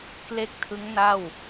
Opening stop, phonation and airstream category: plain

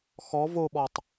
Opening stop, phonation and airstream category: implosive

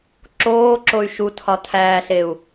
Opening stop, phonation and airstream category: click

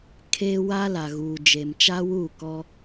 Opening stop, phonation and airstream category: aspirated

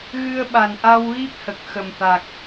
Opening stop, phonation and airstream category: implosive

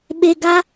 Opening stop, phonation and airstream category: implosive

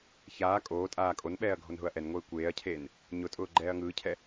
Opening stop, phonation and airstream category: ejective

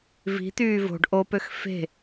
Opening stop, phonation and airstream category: plain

